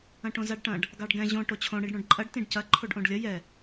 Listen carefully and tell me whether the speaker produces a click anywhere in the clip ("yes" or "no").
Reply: yes